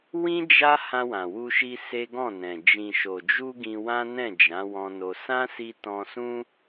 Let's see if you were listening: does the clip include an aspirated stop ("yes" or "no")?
no